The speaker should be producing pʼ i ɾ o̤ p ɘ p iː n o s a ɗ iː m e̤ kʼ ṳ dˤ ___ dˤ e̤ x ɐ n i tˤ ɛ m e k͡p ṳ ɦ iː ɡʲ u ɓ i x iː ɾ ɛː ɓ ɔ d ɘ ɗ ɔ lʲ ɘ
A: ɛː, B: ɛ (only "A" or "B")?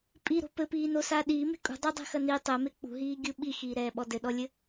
B